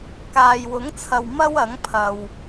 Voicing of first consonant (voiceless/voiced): voiceless